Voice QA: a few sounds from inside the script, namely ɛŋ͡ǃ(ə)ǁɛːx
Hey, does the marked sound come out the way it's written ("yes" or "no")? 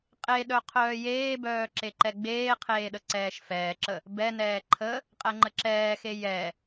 yes